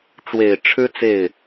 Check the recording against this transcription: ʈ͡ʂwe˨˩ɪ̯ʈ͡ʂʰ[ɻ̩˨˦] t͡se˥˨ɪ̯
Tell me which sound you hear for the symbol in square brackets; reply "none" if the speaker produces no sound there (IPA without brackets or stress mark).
ɻ̩˦